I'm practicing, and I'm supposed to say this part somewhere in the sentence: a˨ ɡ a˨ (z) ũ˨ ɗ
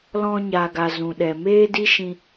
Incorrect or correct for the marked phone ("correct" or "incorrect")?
correct